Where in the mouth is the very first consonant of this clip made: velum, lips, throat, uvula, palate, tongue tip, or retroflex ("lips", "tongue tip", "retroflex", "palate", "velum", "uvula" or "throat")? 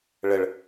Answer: retroflex